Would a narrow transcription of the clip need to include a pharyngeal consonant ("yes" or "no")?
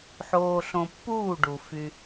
yes